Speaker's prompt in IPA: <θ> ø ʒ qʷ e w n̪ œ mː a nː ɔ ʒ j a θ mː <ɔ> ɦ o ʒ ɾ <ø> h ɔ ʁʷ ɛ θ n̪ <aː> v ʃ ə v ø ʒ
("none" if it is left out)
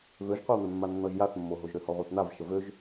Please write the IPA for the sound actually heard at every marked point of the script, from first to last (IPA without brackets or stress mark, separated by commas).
v, o, ø, a